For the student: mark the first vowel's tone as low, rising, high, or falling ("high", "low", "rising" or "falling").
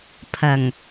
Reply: low